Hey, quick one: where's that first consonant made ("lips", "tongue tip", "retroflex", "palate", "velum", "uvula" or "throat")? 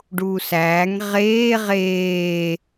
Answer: retroflex